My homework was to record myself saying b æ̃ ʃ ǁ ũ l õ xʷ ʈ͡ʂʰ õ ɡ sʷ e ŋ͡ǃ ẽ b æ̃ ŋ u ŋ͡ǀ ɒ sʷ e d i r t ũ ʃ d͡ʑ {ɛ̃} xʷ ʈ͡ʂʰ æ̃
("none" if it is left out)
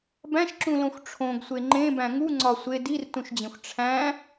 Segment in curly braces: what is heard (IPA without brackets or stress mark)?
ẽ